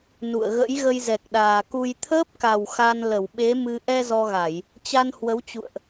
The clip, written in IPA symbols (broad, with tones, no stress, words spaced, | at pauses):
nṵ˧˨ə̯ɣə̰˧˥j ɣə˧jzɛ˨˩k̚ɗaː˨˩ ku˧j t̪ʰəː˦˥p̚ka˨˩w xa˧nlə˧˩w ɓe˨˦mɨ˧ ʔɛ˧ zɔ˧ɣa˧˩˨j | t͡ɕa˧n hwə˨˦wt͡ɕṵ˧˨ə̯ʔ